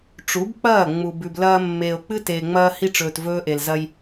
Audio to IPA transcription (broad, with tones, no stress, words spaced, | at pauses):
ʈ͡ʂu˨˦bk͡pɐː˦˨ ŋ͡mu˨bʉ˨blɐː˦ mːeː˨o̯k͡pɨ˦teː˨ ŋ͡mɐː˦hi˦ʈ͡ʂɵː˨t vɵː˦ʔe˨lzɐ˦j